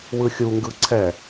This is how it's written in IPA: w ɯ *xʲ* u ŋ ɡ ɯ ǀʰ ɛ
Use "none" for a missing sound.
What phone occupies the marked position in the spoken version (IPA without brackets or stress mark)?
xʲ